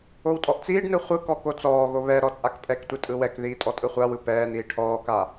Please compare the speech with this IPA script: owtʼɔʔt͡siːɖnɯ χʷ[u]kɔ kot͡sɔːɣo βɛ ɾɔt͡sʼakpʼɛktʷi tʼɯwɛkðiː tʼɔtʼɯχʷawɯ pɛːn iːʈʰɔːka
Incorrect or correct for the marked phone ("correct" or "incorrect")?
incorrect